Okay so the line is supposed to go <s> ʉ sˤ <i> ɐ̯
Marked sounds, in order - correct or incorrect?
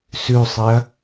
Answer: correct, correct

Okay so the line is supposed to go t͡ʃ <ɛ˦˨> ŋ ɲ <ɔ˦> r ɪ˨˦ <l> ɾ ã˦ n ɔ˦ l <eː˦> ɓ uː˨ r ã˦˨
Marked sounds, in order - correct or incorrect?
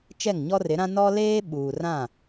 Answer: correct, correct, incorrect: none, correct

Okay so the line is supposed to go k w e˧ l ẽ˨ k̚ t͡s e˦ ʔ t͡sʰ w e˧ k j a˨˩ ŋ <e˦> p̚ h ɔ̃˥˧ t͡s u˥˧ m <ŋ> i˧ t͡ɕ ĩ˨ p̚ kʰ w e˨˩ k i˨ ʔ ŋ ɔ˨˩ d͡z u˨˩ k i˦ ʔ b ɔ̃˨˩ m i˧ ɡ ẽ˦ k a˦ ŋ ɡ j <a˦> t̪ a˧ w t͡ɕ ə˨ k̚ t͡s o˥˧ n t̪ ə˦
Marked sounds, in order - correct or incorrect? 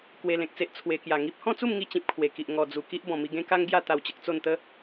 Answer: incorrect: i˦, correct, incorrect: a˥˧

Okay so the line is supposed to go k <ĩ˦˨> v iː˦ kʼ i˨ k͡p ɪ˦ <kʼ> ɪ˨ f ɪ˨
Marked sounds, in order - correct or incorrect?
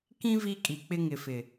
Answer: incorrect: ĩ˦, incorrect: ŋ

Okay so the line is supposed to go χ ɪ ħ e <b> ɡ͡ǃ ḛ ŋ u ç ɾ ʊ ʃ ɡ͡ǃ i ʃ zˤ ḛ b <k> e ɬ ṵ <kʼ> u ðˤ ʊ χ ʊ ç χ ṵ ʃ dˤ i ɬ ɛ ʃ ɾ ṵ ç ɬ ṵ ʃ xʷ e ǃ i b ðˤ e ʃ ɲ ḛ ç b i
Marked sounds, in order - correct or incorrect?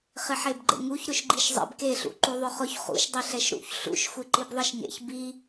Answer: correct, correct, incorrect: ǃ

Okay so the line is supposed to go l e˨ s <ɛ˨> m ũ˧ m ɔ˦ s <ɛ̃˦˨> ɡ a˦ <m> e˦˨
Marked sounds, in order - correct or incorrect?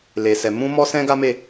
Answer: correct, incorrect: ɛ̃˦, correct

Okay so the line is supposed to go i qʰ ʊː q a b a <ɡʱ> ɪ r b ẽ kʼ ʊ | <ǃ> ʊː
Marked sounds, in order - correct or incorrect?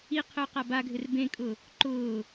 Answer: correct, correct

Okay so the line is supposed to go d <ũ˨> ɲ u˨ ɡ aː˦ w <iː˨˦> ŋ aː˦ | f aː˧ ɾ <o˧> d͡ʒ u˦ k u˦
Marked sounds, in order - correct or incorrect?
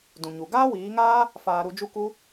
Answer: correct, correct, incorrect: u˧

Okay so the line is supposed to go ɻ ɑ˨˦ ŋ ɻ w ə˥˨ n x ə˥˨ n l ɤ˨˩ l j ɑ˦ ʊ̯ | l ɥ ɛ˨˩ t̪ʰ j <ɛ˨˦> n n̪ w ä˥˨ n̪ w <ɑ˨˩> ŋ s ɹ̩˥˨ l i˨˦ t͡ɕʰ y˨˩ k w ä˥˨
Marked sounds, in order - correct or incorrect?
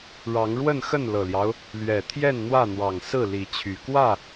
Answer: incorrect: ɛ˥˨, correct

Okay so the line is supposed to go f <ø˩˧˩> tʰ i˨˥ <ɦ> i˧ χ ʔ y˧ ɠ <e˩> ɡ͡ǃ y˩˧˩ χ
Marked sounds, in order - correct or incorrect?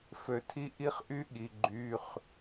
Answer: incorrect: ø˩, incorrect: ʔ, incorrect: i˩

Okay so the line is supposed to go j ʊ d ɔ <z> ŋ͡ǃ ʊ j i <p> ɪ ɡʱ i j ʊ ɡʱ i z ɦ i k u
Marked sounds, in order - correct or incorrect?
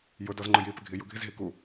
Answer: correct, correct

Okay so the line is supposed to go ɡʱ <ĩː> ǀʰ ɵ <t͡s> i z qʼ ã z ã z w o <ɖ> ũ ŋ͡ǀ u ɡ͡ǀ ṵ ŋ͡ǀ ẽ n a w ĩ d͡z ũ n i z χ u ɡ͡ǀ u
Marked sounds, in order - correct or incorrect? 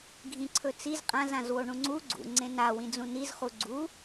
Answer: incorrect: ĩ, correct, incorrect: ɳ

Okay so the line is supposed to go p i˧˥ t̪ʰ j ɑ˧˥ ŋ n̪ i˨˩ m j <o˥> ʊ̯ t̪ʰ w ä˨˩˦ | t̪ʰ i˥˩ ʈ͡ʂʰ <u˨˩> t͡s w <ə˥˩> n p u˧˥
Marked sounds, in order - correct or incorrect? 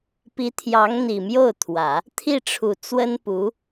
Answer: incorrect: o˥˩, correct, incorrect: ə˥

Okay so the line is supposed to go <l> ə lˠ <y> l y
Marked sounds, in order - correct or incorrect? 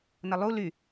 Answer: incorrect: n, incorrect: u

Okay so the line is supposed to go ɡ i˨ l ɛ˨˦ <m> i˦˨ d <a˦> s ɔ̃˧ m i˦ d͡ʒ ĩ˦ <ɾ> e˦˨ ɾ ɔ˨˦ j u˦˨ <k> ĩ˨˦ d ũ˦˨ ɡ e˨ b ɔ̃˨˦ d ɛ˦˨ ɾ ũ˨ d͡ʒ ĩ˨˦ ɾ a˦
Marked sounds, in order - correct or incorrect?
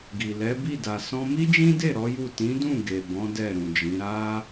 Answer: incorrect: b, incorrect: a˨, incorrect: d, incorrect: t

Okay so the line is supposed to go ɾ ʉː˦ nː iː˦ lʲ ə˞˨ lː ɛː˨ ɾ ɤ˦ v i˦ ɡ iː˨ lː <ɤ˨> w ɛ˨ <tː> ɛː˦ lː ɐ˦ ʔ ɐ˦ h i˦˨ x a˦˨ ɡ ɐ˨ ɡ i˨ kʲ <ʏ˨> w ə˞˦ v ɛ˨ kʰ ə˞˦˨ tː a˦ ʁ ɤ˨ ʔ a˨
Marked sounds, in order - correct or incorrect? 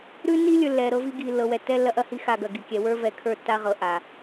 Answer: correct, correct, incorrect: ɛ˨

